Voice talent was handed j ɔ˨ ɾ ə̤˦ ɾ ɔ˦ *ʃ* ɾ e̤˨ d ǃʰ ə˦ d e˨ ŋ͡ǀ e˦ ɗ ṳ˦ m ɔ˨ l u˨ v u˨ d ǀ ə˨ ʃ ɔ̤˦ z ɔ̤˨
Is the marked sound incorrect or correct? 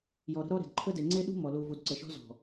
incorrect